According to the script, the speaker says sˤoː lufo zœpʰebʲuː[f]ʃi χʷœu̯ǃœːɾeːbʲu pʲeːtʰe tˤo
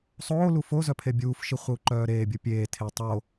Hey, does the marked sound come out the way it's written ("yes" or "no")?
yes